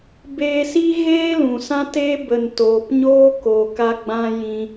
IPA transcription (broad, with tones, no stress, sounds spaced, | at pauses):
b eː˧ s i˦ ɣ eː˦ l ũ˨ s ã˦ t eː˦ b ə˨ n t oː˨ p ɲ oː˦ k o˨ k a˧ ɡ͡b ã˧ j ĩ˧